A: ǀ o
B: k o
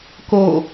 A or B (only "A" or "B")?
B